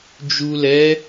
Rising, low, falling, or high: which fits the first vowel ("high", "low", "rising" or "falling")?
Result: low